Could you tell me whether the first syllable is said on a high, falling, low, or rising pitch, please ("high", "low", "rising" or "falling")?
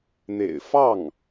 low